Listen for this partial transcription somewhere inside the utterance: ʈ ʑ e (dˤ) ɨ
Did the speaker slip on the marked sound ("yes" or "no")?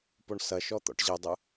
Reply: no